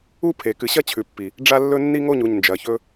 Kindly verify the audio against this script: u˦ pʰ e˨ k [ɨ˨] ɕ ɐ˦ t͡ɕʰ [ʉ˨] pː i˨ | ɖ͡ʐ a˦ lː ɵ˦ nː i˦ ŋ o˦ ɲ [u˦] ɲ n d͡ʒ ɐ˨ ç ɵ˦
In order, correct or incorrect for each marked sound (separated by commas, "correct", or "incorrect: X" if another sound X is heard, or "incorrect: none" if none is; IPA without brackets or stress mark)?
correct, correct, incorrect: u˨